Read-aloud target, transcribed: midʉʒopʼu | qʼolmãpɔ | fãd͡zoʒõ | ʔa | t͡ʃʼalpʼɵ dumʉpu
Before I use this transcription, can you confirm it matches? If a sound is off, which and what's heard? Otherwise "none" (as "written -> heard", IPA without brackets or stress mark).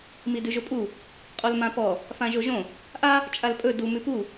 d͡z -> ʒ